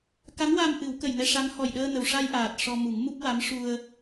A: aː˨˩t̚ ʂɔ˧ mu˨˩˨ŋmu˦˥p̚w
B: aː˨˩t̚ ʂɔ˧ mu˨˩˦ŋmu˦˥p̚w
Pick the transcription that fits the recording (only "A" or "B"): B